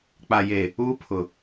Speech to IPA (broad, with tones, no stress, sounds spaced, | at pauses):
k͡p a˨ j eː˨ | uː˦ pʰ ʊ˨